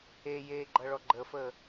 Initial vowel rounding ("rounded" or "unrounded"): unrounded